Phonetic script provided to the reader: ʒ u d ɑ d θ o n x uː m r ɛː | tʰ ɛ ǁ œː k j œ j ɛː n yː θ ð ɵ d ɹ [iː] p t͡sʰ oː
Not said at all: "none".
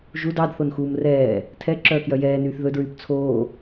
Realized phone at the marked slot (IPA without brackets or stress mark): yː